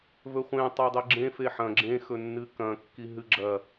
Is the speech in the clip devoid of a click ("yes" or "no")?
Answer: no